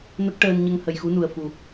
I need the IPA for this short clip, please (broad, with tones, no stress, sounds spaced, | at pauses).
n ə˦˥ k̚ ʈ əː˧ n ɲ ə˧ ŋ h ə˨˩ j x u˧˥ n u˨˩ ə̯ f u˨˩